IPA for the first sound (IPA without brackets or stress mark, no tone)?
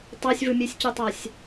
tˤ